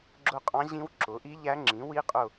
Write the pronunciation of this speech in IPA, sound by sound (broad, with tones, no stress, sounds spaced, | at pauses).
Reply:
ɡ͡ǁ ʊ˦˨ qʼ ɑ̃˧˥ ʑ ĩ˧˥ w ǁ ʊ˩˥ ʔ i˧˥ ʎ æ˧˥ ŋ͡ǁ ĩ˩˥ w i˧˥ qʼ ʊ˦˨